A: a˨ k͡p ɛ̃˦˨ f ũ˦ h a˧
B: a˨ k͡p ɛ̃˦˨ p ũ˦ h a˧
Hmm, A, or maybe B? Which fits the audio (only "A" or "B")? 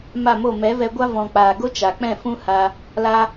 A